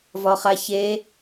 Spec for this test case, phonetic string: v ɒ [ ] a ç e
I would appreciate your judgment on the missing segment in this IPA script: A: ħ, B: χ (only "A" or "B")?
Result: B